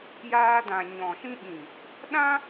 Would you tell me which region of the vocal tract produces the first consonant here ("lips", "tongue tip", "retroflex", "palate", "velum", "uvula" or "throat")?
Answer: palate